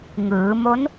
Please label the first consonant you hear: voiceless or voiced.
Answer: voiced